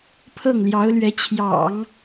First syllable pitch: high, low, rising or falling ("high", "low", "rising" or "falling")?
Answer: falling